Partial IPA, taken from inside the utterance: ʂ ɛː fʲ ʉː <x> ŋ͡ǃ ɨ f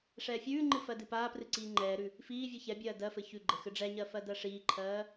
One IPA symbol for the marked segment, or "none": none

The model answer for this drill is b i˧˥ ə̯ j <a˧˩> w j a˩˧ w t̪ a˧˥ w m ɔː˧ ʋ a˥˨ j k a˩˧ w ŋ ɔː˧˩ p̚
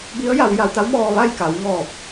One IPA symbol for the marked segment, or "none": a˩˧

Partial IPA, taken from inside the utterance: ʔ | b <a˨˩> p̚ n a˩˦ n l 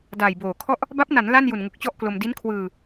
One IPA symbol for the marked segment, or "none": a˦˥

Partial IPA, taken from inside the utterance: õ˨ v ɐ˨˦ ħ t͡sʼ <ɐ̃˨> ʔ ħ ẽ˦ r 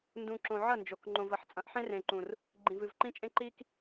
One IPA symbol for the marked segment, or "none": ɐ̃˨˦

